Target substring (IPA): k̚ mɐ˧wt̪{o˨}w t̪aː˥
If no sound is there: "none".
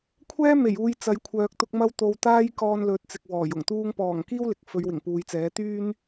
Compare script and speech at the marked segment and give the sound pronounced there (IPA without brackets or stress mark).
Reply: o˨